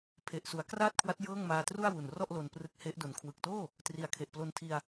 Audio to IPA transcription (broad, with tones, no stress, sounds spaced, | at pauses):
pʰ e˨˩ ʔ s u˩˦ a̯ k r aː˥˩ t̚ kʰ w a˦˥ t̚ j ɤː˥˩ ŋ m aː˧ t r u˥˩ a̯ w u˨˩ n r ɔ˥˩ ʔ l o˧ n p r ɯ˦˥ k̚ h e˦˥ ʔ d o˩˦ n kʰ w ɯ˨˩ k̚ t oː˥˩ | t r i˩˦ a̯ kʰ e˨˩ ʔ p l o˧ n tʰ i˧ a̯